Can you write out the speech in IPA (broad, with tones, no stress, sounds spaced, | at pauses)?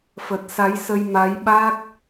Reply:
f ə˨˩ t̚ s a˨˦ j s ə˧ j m a˨˦ j ɓ a˦˥ k̚